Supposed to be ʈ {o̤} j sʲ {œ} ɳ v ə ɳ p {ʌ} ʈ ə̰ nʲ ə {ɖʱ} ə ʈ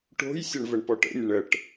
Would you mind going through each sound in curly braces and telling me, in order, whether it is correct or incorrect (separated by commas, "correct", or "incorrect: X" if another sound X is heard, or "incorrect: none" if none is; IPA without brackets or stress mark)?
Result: correct, incorrect: ə, incorrect: ɔ, incorrect: ɳ